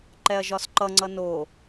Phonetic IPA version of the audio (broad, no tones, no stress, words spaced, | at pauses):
ǃɛɐ̯ʒɒsǃʌŋ͡ǀʌ no